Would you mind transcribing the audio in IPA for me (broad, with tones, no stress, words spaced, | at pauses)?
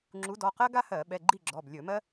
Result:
ŋ͡ǁu˨˦dɔ˩˧˩qɜ˥ɡa˥ hɜ˧˩˧ɓɛ˩˧˩ɡ͡ǃi˥˨ɡ͡ǁɔ˩˧˩b lʲɵ˧˩˧mɜ˥